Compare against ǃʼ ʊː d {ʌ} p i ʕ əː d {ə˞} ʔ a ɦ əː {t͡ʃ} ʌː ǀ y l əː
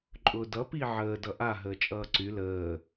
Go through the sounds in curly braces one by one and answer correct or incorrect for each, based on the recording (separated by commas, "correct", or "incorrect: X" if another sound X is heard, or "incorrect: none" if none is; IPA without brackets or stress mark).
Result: correct, incorrect: ʌ, incorrect: t͡ʃʼ